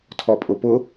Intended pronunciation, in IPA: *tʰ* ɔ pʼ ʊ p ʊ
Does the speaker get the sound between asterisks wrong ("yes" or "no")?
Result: no